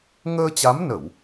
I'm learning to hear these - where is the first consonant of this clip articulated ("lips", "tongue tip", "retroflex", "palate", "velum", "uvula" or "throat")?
velum